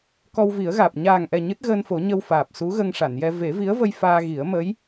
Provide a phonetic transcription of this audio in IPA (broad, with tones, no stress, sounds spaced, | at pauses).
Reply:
k ɔ˧ w v i˨˩˦ ə̯ ɣ aː˨˩ p̚ ɲ aː˨˩ ŋ ʔ ɛ˨˩ ɲ ɨ˦˥ t̚ ɣ əː˧ n f o˨˩˦ ɲ ə˧ w f aː˨˩ p̚ s u˧˥ ɣ ə˧ ŋ ʂ a˨˩˨ n j ɛ˧ v e˨˩˦ v i˧˥ ə̯ v ə˧ j f aː˧ ɣ i˨˩˦ ə̯ m ə˧˥ j